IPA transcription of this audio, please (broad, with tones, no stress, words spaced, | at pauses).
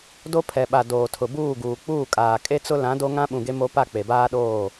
do˦pʰɛ˨ɓa˨ doː˨tʰʊ˨buː˦˨ ɡuː˨k͡puː˦˨kʼaː˨ kʼe˦t͡sʊ˦ lã˨˦do˦ŋã˦ɓũ˨ ɡe˦mo˦ pa˦˨k͡pe˨baː˦ɗoː˦˨